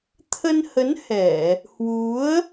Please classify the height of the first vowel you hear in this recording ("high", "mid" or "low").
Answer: mid